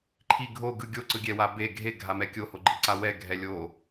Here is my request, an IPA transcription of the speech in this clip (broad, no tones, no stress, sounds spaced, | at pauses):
ǃʰ i ɡʱ o ɡ ɯ ɡʲ o ǀ ɯ ɡʲ ɛ w a b e ɡʱ e ɡʱ a m ɛ kʲ o h o ɡ͡ǃ i ǀ a w ɛ ɡʱ ɛ lʲ o